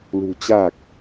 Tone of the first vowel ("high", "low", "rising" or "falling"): low